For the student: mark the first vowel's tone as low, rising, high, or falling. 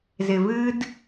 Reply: low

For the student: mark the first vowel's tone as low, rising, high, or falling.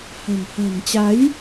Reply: low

